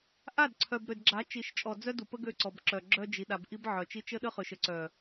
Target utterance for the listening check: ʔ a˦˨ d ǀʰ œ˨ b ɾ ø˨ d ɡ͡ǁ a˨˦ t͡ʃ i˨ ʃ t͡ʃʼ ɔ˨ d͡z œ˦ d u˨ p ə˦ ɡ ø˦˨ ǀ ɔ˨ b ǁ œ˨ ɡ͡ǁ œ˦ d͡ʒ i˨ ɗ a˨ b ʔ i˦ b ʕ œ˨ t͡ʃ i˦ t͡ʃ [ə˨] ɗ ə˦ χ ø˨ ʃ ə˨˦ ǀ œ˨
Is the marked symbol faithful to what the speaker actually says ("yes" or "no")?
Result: no